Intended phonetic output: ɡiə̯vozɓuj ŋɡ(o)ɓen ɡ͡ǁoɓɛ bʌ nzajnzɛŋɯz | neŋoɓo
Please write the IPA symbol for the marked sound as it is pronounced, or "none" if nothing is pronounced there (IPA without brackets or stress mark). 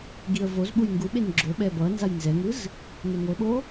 u